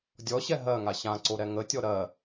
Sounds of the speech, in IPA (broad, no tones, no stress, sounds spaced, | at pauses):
dʲ ɔ ɕ ɛ ɦ ɜ ŋ a ɕ ã ǀ o ɾ ɛ ŋ ə tʲ ɔ ɾ ɜ